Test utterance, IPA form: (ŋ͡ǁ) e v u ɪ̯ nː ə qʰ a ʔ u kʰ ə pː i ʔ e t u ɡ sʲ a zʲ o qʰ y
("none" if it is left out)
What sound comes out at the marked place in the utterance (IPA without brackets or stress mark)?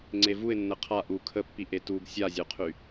ŋ͡ǀ